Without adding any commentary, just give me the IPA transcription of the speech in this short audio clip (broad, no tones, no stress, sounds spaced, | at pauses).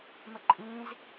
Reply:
m ə ǃʼ ĩ z